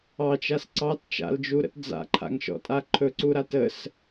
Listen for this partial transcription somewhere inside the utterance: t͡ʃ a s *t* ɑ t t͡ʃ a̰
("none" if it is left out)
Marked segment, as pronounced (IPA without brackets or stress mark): ǀ